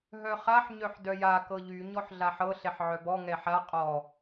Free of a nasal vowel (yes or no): yes